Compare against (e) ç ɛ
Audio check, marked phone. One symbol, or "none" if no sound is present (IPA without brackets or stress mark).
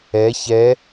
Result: ɛ